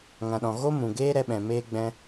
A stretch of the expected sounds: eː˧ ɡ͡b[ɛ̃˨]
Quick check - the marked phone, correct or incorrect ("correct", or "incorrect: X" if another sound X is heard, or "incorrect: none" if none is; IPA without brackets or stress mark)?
incorrect: ɛ̃˧